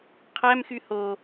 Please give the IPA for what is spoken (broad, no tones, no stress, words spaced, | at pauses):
qʰæmxy ho